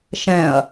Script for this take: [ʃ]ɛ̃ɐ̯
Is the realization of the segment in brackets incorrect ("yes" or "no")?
no